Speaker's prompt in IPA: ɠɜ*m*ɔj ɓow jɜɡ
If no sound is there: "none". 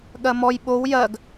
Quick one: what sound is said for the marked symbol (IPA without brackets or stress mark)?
m